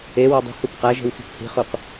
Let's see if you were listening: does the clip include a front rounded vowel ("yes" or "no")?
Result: no